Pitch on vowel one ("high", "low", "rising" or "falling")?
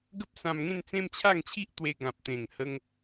high